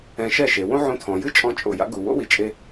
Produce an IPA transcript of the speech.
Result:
ɛ̃˧ ʃɛ˥˩ʃe˩ wõ˥ ʕõ˧tʰɔ̃˩ jɨ˥t͡ʃʼɔ̃˧ t͡ʃʼo̰˩ja̰˩˥ɡu˩ wo̰˥wi˩t͡ʃʼe˧

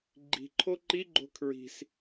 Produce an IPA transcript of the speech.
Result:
ɡ͡ǃi̤ ǃʰoǃi ɡ͡ǃo̤kʰɹi̤s

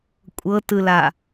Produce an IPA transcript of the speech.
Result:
kʷʼɤtɯla

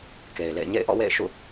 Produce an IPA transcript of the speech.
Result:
ke˨ɪ̯lḛ˦˨ɪ̯ ɲḛ˦˨ɪ̯ʔɔ̰˦˨wḛ˦˨ɪ̯ʃṵ˦˨

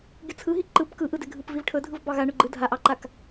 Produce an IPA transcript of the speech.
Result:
ɡʲɯt͡sʰɯɦi ǃɯp kɯʔɯde ɡʱɯpvivʈʰɵdʱɯv bɑɣa ɳɵɡ͡ǃɯ dʱaʔɑǃak

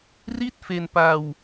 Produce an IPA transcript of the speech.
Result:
ri˥˩t̚ fe˧npa˧w

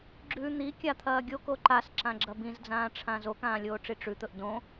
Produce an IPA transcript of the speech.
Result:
ɡ͡ǁʉ n̪ikʲat̪ʰɐː ɡʲoko ǃasǁãɡ͡ǁɐ bĩzd͡zãːʈ͡ʂʰã zokãːlʲoːʈ͡ʂi ʈ͡ʂʉt̪ɵʔ dõ

